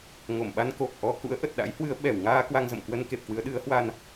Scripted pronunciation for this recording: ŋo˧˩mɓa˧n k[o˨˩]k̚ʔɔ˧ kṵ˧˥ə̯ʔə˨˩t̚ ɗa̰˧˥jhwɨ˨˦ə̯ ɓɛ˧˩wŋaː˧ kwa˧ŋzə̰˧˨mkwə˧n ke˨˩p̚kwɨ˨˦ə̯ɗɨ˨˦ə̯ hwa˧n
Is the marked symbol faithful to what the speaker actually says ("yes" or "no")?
yes